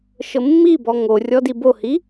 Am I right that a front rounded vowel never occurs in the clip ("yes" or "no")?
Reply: yes